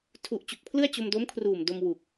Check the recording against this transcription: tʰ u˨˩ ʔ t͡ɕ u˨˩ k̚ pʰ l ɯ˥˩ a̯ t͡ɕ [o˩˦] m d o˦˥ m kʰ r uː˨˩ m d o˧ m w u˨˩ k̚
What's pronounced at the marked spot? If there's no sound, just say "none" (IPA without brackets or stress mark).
o˧